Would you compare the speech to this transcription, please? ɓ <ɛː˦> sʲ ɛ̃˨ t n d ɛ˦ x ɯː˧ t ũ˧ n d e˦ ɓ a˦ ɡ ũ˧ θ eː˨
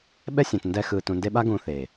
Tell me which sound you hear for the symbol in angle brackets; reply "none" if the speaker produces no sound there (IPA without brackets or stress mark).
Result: ɛ˦